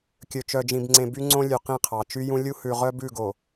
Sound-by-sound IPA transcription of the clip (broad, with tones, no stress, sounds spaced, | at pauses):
kʲ ɵ˨ t͡ʃ œ˨ d͡ʒ ĩ˨ b ŋ͡ǀ ẽ˨ b y˦ ŋ͡ǀ õ˦ lʲ ʉ˨ q ĩ˦˨ qʰ ɑ˨ t͡ʃ y˦ j ũ˦ lʲ u˦ h ʉ˨ ʁ œ˦ b ʉ˦˨ ɡ o˨